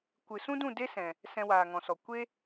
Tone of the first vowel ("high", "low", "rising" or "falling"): low